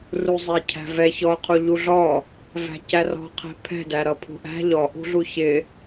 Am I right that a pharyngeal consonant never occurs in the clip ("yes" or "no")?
yes